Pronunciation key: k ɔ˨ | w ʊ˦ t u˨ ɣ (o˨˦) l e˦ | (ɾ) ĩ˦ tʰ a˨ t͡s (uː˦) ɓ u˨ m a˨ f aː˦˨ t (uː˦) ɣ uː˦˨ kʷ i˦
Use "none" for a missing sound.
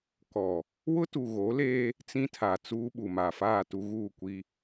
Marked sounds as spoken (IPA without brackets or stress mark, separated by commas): o˨˦, t͡s, uː˦, u˦